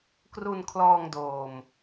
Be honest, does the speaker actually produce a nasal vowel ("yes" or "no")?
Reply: no